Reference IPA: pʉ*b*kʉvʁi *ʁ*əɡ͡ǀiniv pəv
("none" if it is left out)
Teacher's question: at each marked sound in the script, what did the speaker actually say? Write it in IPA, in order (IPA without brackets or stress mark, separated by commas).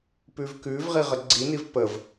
v, ʁ